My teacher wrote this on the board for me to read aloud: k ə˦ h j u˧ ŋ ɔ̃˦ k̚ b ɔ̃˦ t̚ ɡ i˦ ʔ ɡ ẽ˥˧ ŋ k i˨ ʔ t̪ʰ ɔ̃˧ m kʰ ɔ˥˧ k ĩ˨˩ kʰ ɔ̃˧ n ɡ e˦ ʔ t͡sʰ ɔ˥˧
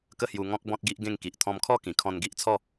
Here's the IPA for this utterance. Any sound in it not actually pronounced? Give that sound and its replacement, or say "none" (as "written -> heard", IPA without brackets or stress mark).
e˦ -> i˦